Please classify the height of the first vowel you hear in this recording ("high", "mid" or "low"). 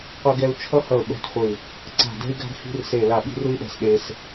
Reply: mid